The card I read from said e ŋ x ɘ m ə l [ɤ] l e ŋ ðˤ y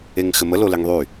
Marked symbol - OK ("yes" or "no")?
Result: no